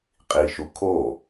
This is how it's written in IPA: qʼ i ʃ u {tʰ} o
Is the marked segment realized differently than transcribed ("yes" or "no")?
yes